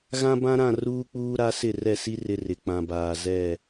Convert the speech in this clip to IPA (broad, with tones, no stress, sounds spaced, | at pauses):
ɣ ã˦ b ã˦ ɾ ã˦˨ r uː˦ k͡p uː˦ ɾ a˦ s ɪ˦˨ r ɛ˦˨ s i˦ r ɪ˦ r ɪ˨ k͡p ã˨ b aː˨ z ɛ˦˨